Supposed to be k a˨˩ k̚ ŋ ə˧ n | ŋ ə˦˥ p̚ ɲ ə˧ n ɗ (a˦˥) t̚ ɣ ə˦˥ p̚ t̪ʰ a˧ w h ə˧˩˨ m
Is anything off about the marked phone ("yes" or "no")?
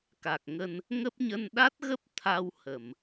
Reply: no